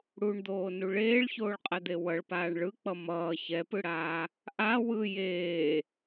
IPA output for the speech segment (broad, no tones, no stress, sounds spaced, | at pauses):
ɽ u ɳ d̪ oː n u ɭ eː ɭ ç oː ɭ qʼ ɛ d̪ e w ʌ ɭ p aː ɳ ɭ ɯ k͡p ʌ m ʌː ç ɛ p ɯ ɽ aː | ʔ a w ɯ j eː